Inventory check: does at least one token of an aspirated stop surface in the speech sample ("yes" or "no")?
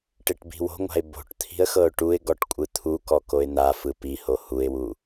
yes